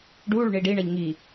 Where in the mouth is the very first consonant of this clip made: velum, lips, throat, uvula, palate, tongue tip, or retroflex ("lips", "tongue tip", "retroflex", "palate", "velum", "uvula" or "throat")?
retroflex